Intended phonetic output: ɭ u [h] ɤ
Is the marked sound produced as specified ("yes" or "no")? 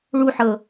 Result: no